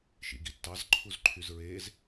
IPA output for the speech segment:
ʃ ḭ ɡ i tː ɑ z ǃʰ u z ǃʰ y z ɹ eː z

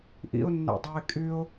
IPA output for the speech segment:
ʔ ḭ ʊ̯ nː æ̰ dˤ ɑ ɪ̯ kʼ y ʊ̯

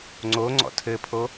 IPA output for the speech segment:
ŋ͡ǀ o ŋ͡ǀ ɔ̰ tʰ ɘ pʰ o

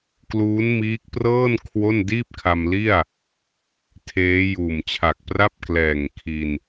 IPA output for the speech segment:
k l uː˦˥ n m iː˦˥ k̚ p r ɤː˥˩ n kʰ w o˥˩ n d iː˥˩ p̚ kʰ a˧ m l i˥˩ a̯ | tʰ eː˦˥ j uː˨˩ m t͡ɕʰ a˨˩ k̚ p r a˥˩ p̚ k l ɛː˨˩ ŋ kʰ i˧ n

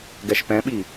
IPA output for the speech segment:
ɡ ɛ ʃ p ɛ̃ ɓ i

